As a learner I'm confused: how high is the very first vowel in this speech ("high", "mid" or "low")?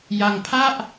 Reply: low